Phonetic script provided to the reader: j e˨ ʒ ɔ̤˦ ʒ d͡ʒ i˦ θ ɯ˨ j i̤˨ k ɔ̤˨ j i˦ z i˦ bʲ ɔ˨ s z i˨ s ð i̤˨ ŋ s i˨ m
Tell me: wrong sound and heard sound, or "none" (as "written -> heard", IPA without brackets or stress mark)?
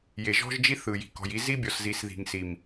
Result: none